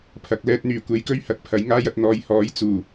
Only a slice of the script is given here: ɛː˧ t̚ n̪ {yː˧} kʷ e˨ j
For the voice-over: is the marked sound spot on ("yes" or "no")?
no